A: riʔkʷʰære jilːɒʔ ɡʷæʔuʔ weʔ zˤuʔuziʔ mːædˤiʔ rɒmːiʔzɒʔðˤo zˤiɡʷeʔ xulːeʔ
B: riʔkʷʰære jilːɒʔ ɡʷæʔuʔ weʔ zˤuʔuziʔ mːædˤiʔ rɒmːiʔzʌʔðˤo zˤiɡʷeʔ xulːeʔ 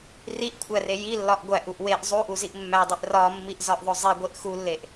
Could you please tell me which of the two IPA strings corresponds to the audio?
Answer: A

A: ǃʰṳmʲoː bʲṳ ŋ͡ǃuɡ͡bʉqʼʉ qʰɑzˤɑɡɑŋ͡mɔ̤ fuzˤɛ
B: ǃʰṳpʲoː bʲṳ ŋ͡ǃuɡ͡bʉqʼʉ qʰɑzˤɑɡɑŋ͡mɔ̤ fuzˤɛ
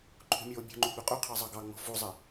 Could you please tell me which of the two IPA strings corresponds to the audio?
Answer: A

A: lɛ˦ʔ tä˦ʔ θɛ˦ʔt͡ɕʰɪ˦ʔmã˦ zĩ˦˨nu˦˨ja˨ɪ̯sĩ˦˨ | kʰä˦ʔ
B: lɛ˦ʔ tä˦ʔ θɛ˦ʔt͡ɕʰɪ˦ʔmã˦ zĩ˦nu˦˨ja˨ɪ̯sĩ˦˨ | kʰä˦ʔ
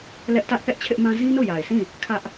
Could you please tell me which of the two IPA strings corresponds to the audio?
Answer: B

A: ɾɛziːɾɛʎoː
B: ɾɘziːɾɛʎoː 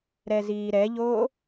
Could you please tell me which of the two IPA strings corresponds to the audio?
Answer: A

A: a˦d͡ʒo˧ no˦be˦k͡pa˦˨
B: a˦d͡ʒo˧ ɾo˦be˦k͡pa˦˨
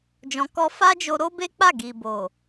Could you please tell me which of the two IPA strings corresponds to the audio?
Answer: B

